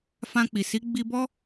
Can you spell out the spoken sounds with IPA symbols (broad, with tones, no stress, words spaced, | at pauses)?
fã˧k͡pi˨ si˨˦ɡ͡bi˧bɔ˦